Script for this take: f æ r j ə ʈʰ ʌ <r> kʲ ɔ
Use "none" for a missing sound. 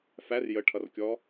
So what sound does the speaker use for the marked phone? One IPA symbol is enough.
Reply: r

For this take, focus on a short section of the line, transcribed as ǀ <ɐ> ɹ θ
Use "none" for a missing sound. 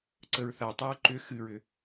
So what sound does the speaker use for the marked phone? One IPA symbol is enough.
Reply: ə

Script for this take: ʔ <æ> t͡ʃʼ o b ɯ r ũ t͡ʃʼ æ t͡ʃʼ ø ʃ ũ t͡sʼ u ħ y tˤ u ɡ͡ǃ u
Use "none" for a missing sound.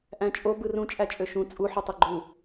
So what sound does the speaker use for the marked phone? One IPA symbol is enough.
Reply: æ̃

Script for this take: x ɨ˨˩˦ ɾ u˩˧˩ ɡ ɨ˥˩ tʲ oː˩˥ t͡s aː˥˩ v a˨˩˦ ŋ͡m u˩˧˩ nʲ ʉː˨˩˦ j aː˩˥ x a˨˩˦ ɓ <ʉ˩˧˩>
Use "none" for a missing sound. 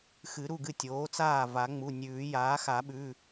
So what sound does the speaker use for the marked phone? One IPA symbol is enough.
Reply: ʉ˩˧˩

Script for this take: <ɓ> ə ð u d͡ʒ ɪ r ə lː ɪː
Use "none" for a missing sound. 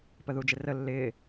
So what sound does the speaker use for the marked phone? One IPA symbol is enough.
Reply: p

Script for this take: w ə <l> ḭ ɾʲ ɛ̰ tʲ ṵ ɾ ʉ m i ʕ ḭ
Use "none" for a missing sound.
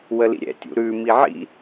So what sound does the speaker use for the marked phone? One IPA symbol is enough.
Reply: l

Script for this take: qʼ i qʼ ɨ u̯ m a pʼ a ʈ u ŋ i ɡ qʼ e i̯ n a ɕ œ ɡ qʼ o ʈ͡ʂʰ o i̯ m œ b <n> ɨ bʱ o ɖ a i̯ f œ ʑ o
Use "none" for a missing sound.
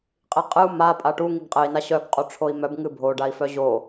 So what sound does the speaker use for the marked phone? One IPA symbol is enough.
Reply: ŋ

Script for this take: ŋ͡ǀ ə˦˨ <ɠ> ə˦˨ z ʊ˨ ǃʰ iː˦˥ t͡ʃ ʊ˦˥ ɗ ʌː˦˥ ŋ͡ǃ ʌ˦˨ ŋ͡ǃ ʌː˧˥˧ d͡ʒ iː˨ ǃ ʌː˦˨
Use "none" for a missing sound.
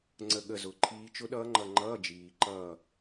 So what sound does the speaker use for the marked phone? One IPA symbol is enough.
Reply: ɠ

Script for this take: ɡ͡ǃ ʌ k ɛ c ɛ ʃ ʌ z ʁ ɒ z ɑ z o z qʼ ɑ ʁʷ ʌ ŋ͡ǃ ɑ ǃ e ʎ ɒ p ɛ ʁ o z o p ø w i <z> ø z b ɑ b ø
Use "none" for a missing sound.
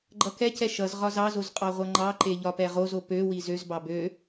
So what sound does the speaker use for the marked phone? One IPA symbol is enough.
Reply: z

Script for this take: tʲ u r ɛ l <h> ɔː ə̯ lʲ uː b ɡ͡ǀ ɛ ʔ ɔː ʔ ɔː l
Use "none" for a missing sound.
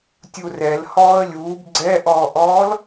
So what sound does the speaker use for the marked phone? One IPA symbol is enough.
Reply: h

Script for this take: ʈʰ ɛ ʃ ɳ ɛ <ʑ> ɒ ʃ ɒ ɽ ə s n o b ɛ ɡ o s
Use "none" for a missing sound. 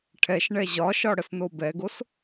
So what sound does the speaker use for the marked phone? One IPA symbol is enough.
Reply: ʑ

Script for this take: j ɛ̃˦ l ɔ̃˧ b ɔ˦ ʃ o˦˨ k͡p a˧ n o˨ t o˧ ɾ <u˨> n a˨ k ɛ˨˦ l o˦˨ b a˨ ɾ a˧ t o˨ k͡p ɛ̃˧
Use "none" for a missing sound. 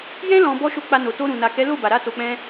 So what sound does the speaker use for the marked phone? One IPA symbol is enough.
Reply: ũ˨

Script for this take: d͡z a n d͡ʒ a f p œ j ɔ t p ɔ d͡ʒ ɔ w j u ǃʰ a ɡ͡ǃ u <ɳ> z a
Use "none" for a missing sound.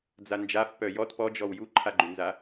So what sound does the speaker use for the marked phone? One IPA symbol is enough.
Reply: n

